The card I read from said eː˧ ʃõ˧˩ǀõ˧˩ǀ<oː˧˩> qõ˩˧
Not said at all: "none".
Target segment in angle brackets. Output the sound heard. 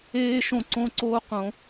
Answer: oː˧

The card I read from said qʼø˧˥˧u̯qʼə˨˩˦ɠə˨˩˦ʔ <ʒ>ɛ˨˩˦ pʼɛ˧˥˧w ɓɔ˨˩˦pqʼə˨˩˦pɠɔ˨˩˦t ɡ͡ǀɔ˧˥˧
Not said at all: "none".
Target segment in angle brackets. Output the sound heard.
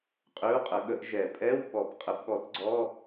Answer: ʒ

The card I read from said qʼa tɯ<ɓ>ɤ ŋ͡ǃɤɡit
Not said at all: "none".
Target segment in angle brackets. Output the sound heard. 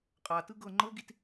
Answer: ɡ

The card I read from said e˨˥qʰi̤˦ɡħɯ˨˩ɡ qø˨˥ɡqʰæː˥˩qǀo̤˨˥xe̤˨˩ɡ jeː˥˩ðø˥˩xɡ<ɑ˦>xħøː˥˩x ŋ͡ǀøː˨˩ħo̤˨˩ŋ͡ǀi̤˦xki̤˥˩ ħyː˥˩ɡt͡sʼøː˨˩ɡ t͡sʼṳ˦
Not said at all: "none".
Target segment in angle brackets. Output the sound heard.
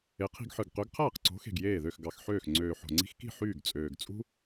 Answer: ɑ˨˩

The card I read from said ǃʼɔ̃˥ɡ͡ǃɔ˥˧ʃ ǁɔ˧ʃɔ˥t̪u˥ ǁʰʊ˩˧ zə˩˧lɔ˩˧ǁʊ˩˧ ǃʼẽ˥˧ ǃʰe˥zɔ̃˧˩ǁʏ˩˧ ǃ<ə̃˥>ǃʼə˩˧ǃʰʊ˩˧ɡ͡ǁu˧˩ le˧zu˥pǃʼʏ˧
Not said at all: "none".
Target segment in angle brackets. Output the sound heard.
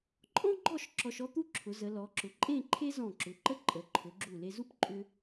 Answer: ə˥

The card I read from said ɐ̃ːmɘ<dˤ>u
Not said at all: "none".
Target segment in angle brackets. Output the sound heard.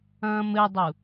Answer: dˤ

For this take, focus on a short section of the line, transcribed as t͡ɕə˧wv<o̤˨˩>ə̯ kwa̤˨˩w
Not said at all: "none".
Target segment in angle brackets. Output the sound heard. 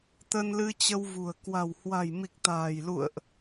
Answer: ṳ˨˩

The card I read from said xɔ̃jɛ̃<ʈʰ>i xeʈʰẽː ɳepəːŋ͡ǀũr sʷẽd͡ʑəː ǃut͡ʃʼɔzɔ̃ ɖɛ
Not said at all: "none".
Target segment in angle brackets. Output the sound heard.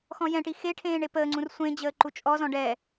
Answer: ʈ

